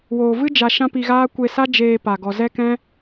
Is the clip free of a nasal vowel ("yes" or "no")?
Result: no